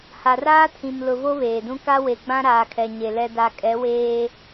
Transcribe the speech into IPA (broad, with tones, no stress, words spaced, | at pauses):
ha˨raː˦tʰĩ˨mlʊ˨ vo˦βeː˨dũ˦ ka˦we˨ɡ͡bã˦ ɾaː˨kʰɛ˨ɲe˨ lɛ˨da˨ kʼɛ˨˦weː˦